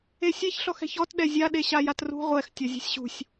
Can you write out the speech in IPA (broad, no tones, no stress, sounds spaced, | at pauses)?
e sʲ e ç ɬ ɔ x ɛ̤ ç ɔ t ɗ ɛ zʲ a ɗ e ɕ a j a t r ṳ ʁʷ ɛ x tʲ ɔ zʲ ɛ̤ sʲ ɕ ṳ sʲ